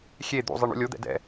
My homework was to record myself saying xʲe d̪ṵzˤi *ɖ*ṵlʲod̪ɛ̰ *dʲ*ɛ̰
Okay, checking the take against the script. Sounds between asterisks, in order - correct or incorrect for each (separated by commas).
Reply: incorrect, incorrect